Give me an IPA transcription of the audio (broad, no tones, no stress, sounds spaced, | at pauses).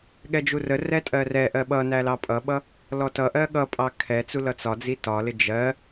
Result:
ɠ ɛ d͡ʒ u r ə r ɛ tʼ ɜ r ɛ ʔ ɜ ɓ ʌ n æ l ɑ pʼ ʌ ɓ ʌ | l ɔ t ʌ ʔ ɜ ɠ ʌ pʼ ɑ kʰ ɛ t͡s u l ʌ t͡s ɒ d͡z i t ɒ l ɪ d͡ʒ ɜ